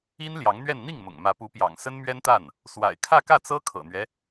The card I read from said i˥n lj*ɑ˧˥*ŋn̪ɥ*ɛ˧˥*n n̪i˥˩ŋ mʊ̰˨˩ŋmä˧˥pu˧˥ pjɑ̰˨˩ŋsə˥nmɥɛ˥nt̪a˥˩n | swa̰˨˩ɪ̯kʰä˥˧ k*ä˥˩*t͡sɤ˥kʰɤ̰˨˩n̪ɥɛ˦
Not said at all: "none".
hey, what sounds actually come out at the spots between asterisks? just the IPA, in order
ɑ˧˥, ɛ˥˧, ä˥˩

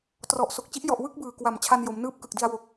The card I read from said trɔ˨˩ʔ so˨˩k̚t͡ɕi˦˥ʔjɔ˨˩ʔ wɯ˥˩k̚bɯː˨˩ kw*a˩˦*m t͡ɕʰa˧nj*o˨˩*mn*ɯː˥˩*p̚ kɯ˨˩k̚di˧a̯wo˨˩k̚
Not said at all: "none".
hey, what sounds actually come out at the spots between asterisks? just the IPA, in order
a˨˩, o˩˦, ɯː˥˩

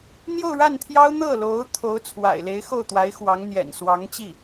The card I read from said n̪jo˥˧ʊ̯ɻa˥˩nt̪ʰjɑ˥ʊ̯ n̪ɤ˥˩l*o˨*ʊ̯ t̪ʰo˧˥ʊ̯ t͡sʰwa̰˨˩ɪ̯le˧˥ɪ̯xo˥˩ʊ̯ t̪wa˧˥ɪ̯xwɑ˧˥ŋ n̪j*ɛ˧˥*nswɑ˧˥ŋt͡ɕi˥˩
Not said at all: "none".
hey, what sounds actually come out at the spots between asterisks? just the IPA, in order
o˧˥, ɛ̰˨˩

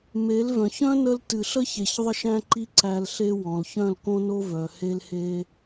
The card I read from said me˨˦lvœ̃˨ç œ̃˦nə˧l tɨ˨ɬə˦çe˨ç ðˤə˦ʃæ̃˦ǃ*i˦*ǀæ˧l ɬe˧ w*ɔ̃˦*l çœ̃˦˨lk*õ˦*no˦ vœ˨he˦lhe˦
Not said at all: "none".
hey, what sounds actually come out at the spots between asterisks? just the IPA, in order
i˦, ɔ̃˨, õ˦

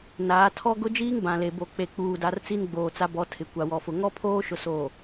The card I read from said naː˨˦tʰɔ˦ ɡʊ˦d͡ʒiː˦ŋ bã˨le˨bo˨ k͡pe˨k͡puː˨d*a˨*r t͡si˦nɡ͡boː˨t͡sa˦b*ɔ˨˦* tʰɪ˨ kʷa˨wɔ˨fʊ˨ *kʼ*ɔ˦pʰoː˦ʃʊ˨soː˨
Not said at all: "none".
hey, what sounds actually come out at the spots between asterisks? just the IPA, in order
a˨, ɔ˨˦, ŋ

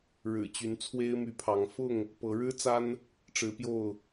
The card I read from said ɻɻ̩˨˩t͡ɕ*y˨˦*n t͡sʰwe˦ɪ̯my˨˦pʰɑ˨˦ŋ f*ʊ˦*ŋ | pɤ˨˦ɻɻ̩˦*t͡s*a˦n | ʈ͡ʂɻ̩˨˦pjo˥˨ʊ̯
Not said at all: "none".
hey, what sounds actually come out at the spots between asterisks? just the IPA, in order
y˨˦, ʊ˥˨, t͡s

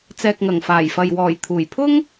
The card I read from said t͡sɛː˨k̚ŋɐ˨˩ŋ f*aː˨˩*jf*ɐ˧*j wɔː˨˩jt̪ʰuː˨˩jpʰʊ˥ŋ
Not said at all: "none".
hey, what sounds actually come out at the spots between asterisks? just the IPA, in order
aː˨˩, ɐ˨

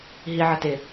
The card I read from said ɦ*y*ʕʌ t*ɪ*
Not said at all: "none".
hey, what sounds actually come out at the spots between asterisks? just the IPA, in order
i, ɪ

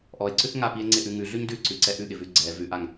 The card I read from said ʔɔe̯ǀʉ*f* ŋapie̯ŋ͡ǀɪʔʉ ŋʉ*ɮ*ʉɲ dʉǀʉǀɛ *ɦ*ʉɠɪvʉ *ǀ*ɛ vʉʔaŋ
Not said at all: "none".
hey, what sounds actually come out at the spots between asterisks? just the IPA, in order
θ, ɮ, ʔ, ɡ͡ǀ

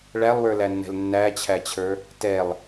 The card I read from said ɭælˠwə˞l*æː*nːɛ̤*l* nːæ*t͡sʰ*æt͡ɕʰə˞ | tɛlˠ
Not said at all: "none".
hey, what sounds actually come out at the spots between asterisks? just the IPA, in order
æ, l, t͡ɕʰ

